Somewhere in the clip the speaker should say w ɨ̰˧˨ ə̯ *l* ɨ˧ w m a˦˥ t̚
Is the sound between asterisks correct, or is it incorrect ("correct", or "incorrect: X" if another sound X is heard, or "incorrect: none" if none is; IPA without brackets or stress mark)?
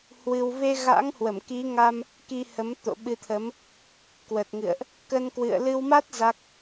correct